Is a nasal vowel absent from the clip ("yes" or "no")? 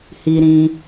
no